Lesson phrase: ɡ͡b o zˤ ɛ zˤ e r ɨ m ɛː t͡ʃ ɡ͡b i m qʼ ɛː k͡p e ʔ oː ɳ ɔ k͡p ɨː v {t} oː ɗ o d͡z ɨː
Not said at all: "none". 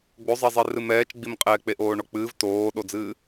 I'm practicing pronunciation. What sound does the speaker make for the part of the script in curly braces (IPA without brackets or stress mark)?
t